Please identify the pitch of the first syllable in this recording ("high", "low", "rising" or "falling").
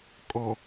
low